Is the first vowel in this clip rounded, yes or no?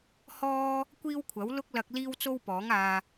yes